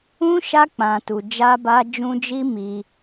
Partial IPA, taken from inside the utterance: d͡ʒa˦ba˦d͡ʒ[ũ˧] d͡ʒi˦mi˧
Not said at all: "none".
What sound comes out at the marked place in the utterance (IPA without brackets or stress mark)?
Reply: ũ˦